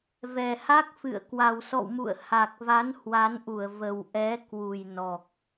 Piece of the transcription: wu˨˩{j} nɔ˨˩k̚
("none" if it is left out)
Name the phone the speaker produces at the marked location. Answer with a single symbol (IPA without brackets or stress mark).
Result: j